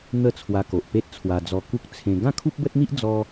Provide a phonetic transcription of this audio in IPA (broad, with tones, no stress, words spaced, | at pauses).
n̪ə˥˧ t͡sʰwa˧ko˨ʔpe˦t̚ t͡sʰwa˧d͡zɔ˧ ku˦k̚ t͡sʰẽ˧ ɡã˥˧kʰu˦p̚bə˦t̚n̪i˦ʔ d͡zɔ˦